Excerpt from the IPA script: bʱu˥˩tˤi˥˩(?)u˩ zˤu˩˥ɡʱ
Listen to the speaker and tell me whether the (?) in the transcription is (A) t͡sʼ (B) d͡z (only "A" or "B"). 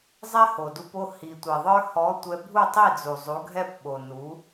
B